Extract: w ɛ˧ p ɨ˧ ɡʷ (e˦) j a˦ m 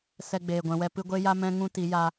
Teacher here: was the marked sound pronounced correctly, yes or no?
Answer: yes